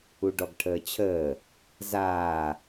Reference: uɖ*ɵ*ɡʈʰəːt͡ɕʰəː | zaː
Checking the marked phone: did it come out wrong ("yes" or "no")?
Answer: yes